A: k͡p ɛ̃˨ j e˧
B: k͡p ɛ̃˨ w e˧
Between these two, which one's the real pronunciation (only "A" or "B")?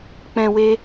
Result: B